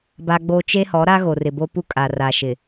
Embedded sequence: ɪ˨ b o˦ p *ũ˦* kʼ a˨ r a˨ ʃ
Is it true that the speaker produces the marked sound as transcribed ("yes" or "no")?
no